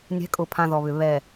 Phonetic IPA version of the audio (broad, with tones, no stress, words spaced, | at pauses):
nʲɛ̤˨˦kʼʊ˨pʰã˨ ðɔ˨βʏ˨ βɛ˨